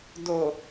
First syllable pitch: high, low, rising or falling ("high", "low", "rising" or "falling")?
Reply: low